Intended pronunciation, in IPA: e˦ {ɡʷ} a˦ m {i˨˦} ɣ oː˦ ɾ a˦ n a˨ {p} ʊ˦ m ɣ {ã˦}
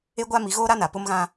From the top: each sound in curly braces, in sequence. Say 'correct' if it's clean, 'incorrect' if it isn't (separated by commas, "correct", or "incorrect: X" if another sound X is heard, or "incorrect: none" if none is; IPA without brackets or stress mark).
correct, correct, correct, correct